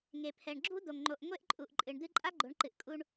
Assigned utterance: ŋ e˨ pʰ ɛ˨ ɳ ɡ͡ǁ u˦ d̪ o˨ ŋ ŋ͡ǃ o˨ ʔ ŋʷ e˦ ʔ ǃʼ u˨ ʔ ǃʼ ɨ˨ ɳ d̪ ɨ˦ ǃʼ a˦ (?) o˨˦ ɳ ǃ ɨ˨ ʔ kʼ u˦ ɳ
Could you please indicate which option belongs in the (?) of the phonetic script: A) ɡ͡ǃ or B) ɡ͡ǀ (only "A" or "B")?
A